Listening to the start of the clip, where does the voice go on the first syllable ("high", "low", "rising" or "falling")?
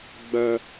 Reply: high